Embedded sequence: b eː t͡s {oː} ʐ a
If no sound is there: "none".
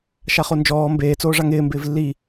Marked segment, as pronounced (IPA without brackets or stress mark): oː